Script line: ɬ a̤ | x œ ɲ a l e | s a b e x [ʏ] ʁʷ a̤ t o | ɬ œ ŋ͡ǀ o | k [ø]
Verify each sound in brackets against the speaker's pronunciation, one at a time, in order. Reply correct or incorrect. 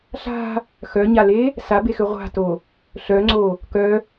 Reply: correct, incorrect: œ

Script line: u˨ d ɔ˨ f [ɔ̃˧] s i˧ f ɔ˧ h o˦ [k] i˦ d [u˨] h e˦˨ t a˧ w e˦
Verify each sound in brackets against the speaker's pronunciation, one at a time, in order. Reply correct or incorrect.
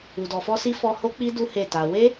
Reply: incorrect: ɔ˧, incorrect: k͡p, incorrect: u˦

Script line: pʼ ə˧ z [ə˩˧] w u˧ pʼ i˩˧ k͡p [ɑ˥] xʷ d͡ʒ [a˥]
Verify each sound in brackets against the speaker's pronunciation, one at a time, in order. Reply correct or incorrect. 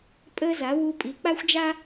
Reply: incorrect: a˩˧, incorrect: a˥, correct

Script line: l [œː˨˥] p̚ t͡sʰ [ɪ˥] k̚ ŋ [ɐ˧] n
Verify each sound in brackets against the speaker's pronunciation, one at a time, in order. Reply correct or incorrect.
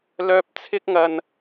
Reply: incorrect: œː˧, correct, correct

